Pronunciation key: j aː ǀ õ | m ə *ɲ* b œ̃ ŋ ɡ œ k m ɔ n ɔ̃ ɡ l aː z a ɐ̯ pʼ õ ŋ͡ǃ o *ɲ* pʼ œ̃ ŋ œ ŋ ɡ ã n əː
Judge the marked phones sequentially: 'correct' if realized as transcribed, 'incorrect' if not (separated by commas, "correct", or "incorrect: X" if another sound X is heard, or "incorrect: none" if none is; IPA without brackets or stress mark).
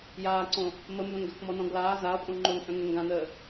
incorrect: m, incorrect: n